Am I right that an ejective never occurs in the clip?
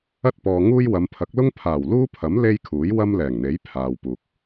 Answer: yes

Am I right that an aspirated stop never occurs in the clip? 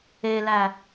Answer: yes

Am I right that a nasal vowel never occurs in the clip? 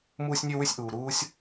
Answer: yes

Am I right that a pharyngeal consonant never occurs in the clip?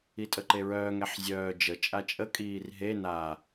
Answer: no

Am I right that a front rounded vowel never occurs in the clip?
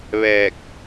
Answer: yes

